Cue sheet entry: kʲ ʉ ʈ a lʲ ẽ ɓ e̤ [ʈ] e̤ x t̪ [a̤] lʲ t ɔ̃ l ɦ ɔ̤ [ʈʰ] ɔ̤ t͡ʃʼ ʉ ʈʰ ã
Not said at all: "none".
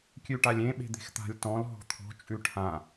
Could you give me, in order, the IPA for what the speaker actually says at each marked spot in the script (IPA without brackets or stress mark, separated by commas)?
d̪, a̤, t̪ʰ